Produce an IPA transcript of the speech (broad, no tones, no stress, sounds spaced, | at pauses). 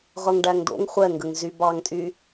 ʁ ɤ ŋ ɖ æ ŋ d̪ o̰ ŋ χʷ ɛ ŋ ɡ ə ŋ z y b ɑ ŋ tʼ y